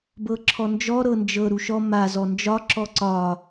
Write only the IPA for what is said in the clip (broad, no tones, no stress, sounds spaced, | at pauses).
b ɤ ǁʰ ɔ n d͡ʒ ɔ ɾ ɤ n d͡ʒ ɤ ɾ u ʃ ɔ m a z ɔ n d͡ʒ ɒ ǁ ɔ ǀ ɒ